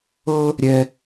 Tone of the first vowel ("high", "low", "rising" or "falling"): high